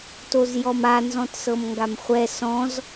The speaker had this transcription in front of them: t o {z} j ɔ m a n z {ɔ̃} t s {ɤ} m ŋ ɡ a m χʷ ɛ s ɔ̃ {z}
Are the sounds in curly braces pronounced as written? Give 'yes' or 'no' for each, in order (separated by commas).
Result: yes, yes, yes, yes